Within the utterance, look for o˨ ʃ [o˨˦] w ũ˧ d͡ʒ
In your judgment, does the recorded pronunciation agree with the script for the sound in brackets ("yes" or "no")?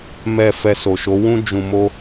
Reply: yes